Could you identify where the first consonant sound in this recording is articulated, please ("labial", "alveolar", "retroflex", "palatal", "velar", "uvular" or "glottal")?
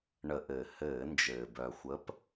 retroflex